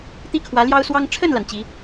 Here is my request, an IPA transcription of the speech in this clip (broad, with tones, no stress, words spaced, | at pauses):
t̪i˥kʰwä˧˥ ljɑ˥ʊ̯swɑ˥ŋ ʈ͡ʂʰə˥˩nla˩n t͡ɕi˧˥